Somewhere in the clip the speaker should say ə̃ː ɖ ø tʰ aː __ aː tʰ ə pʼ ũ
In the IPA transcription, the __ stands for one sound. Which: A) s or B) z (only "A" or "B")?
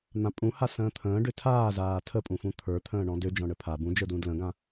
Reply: B